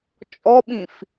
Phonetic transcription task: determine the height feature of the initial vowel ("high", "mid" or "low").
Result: mid